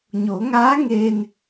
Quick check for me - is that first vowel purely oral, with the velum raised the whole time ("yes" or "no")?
yes